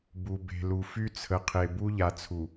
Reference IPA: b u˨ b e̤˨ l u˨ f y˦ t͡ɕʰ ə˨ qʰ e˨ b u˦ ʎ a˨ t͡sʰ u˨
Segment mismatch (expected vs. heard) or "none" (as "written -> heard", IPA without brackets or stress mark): t͡ɕʰ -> t͡sʰ